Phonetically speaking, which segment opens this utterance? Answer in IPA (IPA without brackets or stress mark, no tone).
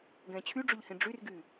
ɡ